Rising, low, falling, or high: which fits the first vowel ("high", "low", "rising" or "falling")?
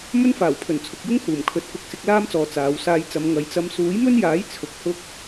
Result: high